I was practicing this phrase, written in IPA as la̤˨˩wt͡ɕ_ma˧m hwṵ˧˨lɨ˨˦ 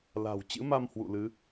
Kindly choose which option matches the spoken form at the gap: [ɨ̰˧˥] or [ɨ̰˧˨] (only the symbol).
ɨ̰˧˥